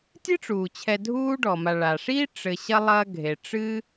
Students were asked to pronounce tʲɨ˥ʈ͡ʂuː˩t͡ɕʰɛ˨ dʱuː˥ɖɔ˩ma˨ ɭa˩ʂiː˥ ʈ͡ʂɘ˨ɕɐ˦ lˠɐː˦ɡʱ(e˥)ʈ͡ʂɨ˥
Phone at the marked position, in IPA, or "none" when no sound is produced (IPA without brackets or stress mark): e˩